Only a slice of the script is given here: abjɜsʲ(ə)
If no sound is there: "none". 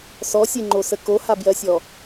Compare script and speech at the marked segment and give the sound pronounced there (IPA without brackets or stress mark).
ɔ